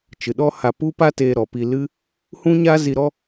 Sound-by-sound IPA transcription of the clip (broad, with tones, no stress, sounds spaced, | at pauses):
t͡ʃ ɨ˨ ɗ ɔ˦ h a˧ p u˦ p a˦ t eː˧ ɾ ɔ˨ p i˧ l ɨ˦ | h ũ˦ ɲ a˦ z i˧ ɾ ɔ˦